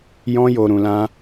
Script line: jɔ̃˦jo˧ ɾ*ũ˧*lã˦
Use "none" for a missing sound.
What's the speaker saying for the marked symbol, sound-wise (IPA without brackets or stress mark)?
ũ˧